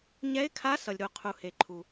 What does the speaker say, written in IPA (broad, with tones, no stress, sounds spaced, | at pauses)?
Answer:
ɲ ɛ˧˥ ɪ̯ kʰ a˧˥ s ʌ˩ lʲ ɾ u˩ qʰ u˩ h e˩ ǃʰ u˩